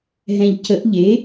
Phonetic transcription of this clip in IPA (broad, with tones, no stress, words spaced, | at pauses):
ɦɛ̃˨ʎcə˨˩˦ʔ ʎe˩˥